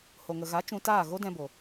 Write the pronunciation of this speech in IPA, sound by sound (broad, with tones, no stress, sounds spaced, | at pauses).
h o˨ ŋ ə˨ ɣ a˨˦ t͡ʃ ũ˧ t aː˦˨ ɣ o˦ d ɛ̃˧ b o˨